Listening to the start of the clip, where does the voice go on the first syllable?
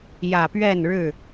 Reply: low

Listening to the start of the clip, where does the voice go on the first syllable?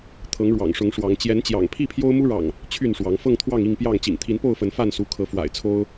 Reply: rising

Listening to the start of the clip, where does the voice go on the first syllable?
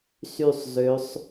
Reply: falling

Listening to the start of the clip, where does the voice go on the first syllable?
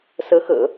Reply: rising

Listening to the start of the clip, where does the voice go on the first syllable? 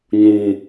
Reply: low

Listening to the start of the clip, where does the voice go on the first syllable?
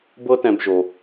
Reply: high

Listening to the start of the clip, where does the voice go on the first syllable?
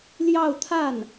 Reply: falling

